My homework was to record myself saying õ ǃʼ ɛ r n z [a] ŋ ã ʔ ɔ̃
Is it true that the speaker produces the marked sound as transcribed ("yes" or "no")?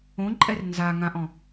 yes